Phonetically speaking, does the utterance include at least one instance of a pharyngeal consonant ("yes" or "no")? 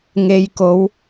no